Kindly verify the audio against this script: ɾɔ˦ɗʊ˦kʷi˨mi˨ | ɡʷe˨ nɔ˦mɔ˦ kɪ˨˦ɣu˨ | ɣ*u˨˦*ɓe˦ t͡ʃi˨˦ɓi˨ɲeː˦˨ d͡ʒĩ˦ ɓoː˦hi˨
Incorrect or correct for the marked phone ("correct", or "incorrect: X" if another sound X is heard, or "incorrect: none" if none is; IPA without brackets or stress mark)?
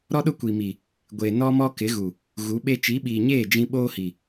correct